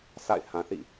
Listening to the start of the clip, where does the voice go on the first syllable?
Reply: falling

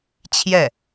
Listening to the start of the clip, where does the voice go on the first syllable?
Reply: falling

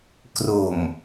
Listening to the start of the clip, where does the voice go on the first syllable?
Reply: low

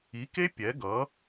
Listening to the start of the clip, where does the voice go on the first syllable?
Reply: rising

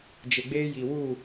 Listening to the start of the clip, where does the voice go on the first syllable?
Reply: low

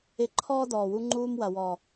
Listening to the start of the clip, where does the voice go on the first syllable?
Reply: low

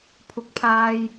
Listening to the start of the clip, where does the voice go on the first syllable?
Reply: low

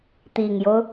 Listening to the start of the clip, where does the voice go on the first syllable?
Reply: low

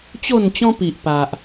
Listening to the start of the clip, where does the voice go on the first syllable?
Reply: falling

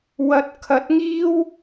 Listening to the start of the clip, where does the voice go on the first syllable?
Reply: rising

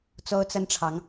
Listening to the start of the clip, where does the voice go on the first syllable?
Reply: high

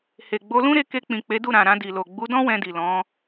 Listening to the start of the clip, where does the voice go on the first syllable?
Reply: low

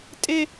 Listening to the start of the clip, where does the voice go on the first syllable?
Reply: high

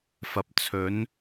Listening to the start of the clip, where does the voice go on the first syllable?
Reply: low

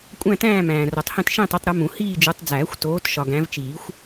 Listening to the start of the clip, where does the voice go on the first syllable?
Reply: falling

